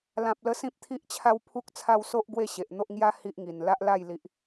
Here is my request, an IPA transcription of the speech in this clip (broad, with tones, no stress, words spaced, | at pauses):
lã˨p̚lə˧ sĩ˦p̚t̪ʰi˦ʔt͡ɕʰa˦w pʰu˦k̚t͡sʰa˦w so˦ʔ ɡwe˥˧ɕe˨ʔn̪o˦ʔ ŋja˦ hi˦ʔŋi˨˩n la˦ʔla˥˧jli˨ʔ